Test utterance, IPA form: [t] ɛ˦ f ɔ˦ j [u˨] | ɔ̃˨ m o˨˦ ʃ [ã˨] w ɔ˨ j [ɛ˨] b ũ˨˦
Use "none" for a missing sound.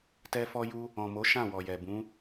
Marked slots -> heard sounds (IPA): t, u˦, ã˦˨, ɛ˨

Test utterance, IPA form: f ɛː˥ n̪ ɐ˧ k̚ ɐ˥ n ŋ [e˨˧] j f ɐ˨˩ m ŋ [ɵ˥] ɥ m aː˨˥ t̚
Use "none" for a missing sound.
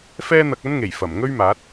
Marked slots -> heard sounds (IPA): e˨˩, ɵ˥

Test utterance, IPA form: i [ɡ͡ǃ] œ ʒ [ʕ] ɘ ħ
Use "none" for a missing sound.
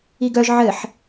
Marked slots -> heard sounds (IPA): ɡ, ʕ

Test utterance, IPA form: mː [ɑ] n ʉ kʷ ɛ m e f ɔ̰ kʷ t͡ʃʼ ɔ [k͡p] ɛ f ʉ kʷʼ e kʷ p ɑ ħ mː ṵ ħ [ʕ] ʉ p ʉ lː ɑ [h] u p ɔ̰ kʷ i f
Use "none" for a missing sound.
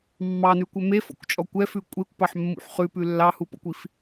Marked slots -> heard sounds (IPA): ɑ, kʷ, χ, h

